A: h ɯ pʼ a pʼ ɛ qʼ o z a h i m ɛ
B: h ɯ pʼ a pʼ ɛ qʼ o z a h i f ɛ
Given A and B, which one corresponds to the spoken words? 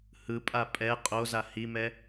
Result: A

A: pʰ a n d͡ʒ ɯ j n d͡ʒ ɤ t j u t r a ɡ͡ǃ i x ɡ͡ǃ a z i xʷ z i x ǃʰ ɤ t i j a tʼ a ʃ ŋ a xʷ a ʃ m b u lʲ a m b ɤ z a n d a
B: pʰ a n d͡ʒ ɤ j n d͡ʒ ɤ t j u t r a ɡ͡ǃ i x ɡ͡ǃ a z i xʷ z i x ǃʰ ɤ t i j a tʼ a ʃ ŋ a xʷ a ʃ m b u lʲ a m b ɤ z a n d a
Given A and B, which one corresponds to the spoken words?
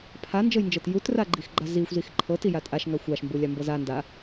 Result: B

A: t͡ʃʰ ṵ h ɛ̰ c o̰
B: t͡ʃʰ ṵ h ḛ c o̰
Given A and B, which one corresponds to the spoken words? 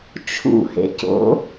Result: B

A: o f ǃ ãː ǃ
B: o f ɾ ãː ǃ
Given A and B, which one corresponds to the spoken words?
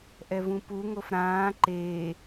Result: B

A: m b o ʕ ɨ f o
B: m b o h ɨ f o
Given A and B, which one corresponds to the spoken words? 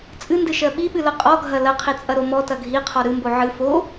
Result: A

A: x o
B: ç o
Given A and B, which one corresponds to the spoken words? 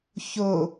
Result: B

